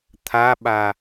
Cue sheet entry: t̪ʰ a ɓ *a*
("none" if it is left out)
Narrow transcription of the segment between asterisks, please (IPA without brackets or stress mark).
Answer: a